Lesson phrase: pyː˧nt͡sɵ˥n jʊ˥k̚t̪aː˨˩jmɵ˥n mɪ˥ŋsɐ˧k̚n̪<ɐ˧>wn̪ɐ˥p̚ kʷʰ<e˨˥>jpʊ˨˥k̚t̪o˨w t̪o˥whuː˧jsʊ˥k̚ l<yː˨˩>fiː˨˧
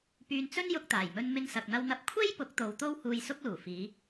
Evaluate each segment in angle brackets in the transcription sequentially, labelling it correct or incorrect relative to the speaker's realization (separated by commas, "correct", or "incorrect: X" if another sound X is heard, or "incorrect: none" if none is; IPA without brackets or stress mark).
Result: incorrect: ɐ˥, incorrect: e˥, incorrect: uː˨˩